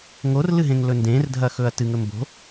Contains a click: no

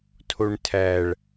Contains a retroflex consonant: yes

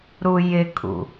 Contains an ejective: yes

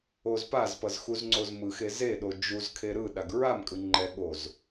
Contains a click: yes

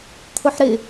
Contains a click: no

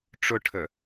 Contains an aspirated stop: yes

